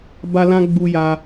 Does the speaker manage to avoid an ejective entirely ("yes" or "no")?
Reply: yes